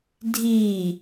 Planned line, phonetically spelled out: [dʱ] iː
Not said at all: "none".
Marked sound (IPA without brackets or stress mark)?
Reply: dʱ